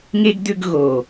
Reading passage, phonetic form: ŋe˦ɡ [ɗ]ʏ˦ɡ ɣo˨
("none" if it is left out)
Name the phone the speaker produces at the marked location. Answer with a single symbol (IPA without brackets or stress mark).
d